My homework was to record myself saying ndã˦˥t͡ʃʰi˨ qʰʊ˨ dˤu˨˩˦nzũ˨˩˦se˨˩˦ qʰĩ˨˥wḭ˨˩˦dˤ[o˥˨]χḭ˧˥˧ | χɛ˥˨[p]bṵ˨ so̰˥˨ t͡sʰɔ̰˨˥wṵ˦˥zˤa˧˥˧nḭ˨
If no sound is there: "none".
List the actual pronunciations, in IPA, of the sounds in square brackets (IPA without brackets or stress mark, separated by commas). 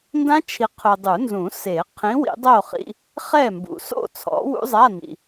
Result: o˥˨, m